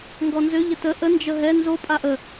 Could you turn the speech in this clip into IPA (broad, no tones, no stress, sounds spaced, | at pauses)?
ŋ ɡ ɔ n z ø ʎ ə t ə ʔ ə n d͡ʒ ə ɦ ɛ n z o pʼ a ʔ ə